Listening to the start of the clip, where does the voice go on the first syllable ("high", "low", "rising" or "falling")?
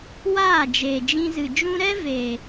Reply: falling